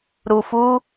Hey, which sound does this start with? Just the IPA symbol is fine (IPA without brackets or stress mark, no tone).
ɾ